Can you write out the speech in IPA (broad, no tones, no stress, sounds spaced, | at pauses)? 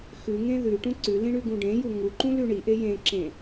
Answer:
x ʉ ŋ ẽ ð ʉ ʈ ũ ǀ ʉ l ĩ ɳ ʉ ɡ ũ ɖ ẽ j u ŋ u ǃ ũ l ʉ ɳ i ʔ e j ẽ ǁ ẽ